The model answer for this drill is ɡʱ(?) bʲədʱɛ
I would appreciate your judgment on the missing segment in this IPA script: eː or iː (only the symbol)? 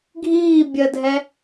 iː